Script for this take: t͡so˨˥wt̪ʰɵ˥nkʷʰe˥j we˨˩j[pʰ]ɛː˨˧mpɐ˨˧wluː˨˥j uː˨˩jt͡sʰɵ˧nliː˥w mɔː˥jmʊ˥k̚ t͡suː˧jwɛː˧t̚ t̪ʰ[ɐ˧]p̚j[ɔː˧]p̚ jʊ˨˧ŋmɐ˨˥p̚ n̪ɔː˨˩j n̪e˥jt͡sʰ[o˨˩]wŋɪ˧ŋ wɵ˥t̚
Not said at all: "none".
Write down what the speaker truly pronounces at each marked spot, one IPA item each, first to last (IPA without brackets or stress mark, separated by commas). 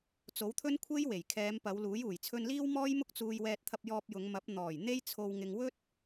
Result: kʰ, ɐ˧, ɔː˧, o˧